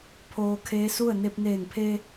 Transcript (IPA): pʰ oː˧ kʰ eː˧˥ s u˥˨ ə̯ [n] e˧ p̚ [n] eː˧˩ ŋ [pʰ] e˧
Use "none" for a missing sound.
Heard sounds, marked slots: n, n, pʰ

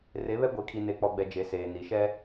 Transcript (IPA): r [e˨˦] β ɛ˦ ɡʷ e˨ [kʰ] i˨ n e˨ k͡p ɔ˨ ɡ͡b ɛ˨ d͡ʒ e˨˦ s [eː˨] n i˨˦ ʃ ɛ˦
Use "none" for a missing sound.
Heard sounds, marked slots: e˨˦, kʰ, eː˨

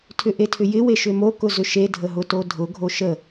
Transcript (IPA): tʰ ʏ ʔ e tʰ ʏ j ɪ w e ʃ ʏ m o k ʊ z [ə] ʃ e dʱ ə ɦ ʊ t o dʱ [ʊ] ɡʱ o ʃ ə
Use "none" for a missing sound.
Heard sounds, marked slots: ʏ, ʊ

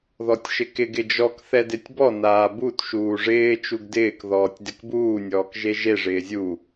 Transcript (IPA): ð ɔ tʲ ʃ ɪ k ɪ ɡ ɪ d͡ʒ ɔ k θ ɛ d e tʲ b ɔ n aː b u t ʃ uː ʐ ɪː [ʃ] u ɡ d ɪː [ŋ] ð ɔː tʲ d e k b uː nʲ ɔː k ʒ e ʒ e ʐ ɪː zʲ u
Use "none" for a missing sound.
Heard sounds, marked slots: t͡ʃ, k

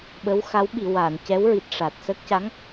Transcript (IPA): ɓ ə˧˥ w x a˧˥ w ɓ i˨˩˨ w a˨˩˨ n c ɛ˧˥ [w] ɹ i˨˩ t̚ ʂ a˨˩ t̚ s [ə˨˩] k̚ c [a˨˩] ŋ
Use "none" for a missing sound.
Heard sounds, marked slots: w, ə˦˥, a˧˥

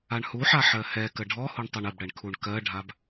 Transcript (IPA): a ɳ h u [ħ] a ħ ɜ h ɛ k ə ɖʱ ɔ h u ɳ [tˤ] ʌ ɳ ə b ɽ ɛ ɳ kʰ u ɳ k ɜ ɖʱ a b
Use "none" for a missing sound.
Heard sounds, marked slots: ħ, tˤ

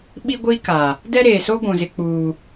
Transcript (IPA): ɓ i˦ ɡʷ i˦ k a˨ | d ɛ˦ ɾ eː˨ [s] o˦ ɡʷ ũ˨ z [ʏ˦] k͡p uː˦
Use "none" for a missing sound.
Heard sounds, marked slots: s, ɪ˦

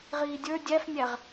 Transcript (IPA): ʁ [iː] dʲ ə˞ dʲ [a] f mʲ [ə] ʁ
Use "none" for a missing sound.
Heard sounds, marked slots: iː, æ, æ

